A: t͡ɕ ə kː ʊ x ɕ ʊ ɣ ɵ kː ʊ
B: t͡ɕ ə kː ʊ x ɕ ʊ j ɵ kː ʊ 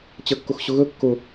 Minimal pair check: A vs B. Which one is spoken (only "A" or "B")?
A